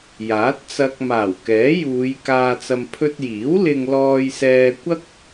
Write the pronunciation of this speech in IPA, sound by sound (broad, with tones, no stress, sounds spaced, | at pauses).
j aː˨˥ t̚ t͡s ɐ˧ k̚ m aː˨˩ w k ɛː˨˥ j uː˨˧ j k aː˧ t͡s ɐ˧ m pʰ ɵ˧ t̚ j iː˨˥ w l ɪ˧ ŋ l ɔː˧ j s ɛː˧ kʷ ɐ˥ k̚